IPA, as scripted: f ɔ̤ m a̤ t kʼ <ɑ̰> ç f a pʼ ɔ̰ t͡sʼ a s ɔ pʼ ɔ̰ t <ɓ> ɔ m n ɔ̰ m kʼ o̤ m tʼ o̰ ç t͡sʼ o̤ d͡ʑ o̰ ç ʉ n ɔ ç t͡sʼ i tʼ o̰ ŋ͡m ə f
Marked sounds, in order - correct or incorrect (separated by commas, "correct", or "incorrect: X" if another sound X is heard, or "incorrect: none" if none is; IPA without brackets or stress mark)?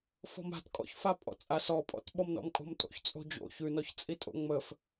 incorrect: ɔ̰, correct